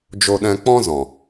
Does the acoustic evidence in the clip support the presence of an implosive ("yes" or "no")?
yes